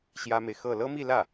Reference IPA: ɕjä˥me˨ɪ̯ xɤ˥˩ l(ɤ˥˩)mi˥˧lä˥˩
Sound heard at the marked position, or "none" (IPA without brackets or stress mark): ɤ˥